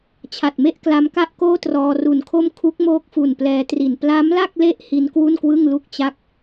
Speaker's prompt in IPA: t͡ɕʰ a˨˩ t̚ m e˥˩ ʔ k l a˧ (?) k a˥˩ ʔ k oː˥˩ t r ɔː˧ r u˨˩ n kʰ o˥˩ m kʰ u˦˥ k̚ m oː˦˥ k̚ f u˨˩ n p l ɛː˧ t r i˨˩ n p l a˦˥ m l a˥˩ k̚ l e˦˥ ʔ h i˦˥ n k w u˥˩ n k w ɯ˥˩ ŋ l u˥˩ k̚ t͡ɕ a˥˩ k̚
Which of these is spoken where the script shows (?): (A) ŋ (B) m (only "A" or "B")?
B